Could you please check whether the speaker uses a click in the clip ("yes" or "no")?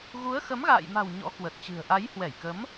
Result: no